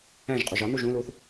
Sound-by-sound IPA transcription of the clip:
æ̃ ʒ qʼ u ʒ ɒ n u ʒ ũ l uː θ

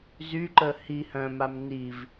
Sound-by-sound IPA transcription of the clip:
z y ǃ ə h i h œ̃ m a m n i v

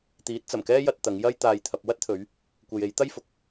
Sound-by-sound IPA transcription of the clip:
t̪ iː˨˥ t̚ t͡s ɐ˨˩ m k ɛː˥ j ɐ˧ t̚ t̪ ɐ˨˧ ŋ j ɐ˥ j t̪ aː˧ j t̪ʰ ɐ˨ p̚ w ɐ˥ t̚ t̪ʰ ɵ˨˧ ɥ | kʷ e˨ j e˨˧ j t̪ ɐ˥ j f ʊ˧ k̚

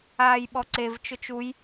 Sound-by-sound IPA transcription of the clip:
aː j ɓ ɔ ǀ e v t͡ʃ ʊ t͡ʃ u j

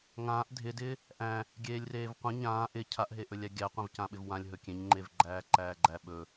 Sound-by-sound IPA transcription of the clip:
ŋ ãː ʔ dʱ ɪ d ɪː | ʔ æ̃ | ɡʲ eː lʲ r eː v qʷ ə̃ ɲ ãː ʔ ɪ cʰ a ʔ ɦ e ʔ ɵ lʲ æ ɡʲ æ qʷ ẽ v c ã ɓ ɪ v w ã lʲ ɦ ɵ kʲ ẽ ɲ ŋ͡ǃ e v ɡ͡ǃ æː ǃ æː ɡ͡ǃ æ ɓ ɵ

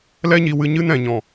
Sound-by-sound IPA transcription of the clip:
l ɛ˦ ɲ i˧ w ɨ˧ ɲ ɨ˧ n ɛ̃˨ ɲ ɔ̃˨

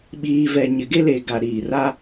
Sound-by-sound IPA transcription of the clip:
ɓ iː˨ v ɛ˨ ɲ ɪ˨ ɡ e˦ l e˨ ɡ a˨ ɾ iː˨ r a˦

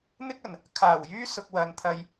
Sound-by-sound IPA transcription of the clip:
n̪ ɪ˥ k̚ ɐ˨˩ n | kʰ aː˨˩ w j yː˥ s ʊ˧ k̚ w ɐ˨˧ n t̪ʰ ɐ˧ j

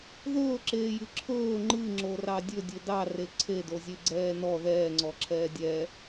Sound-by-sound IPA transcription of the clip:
ð ɵː ǁ eː j ɨ ǁʰ ɵː ŋ͡ǃ ɨ ŋ͡ǁ o r ɑ dʲ ɵ dʲ ɵ d ɑ r e ǀʰ e d o zʲ e ɡ͡ǀ ɛː n ɔ ð ɛː ŋ͡ǀ ɔ ǁʰ ɛː dʲ ɛ

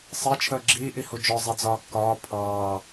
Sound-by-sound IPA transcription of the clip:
sˤ ɪː t͡ʃʰ əː ɡ͡ǁ iː ʔ i h u d͡ʒ ɔ zˤ i d͡z ɒː kː ɒː pʰ ɑː

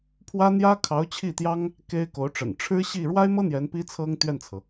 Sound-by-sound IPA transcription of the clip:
pʰ w ä˥ n̪ j ä˥ kʰ ɑ˧˥ ʊ̯ t͡ɕʰ i˥˩ t̪ j ɑ˥ ŋ | k e˥ ɪ̯ k o˧˥ ʊ̯ ʈ͡ʂ ə̰˨˩ n ʈ͡ʂʰ ɻ̩˥ ɕ i˥˩ ɻ w a˥ ɪ̯ m ɤ˥ n̪ j ɛ˧˥ n p i˥ t͡sʰ ɤ˥ ŋ t̪ ɥ ɛ˥˩ n t͡sʰ ɤ˩

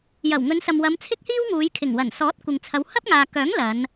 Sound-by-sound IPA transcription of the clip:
j ɐ˨˩ w ŋ ɵ˨˧ n s ɐ˨ m w ɐ˨˧ m t͡sʰ ɪ˥ k̚ h iː˥ w ŋ uː˨˧ j kʰ ɪ˨˩ ŋ w ɐ˨˩ n s ɔː˨˥ t̚ kʷ ɪ˨ ŋ t͡sʰ ɐ˨˧ w h ɐ˥ p̚ ŋ aː˨ k œː˨˥ ŋ l ɐ˨˧ n

